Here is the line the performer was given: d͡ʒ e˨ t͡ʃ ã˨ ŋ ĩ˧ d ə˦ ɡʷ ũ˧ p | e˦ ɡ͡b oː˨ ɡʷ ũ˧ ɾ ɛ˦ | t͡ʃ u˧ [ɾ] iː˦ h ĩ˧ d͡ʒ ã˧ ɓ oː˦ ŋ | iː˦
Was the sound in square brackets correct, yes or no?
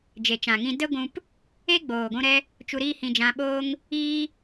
yes